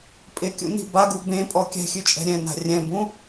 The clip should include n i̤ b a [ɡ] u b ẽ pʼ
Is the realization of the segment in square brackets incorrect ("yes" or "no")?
no